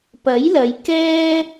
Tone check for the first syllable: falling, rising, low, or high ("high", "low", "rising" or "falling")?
rising